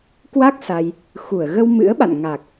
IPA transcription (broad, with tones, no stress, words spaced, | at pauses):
kwa˦˥k̚ sa˧j | xu˧˩ə̯ ɣə˧wmɨ̰˧˥ə̯ɓa̰˧˨n ŋa˨˩k̚